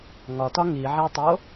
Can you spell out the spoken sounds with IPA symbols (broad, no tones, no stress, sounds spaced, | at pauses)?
ŋ ɒ t ɒ ŋ i ʕ æ tˤ o